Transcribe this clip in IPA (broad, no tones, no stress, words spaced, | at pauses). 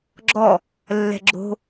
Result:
ɡ͡ǁɔ | lːɛ̤ɡ͡ǁo̤